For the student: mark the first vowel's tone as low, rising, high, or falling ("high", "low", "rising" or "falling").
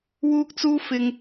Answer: high